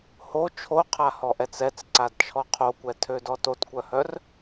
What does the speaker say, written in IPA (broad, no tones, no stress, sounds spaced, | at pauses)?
h o t͡ʃʰ o qʰ a h ɔ ʔ ɛ t͡s ɛ t͡s ǀ a d t͡ʃʰ ɔ qʰ o kʷ ɛ tʰ ø d ɔ t o t kʷ œ h œ r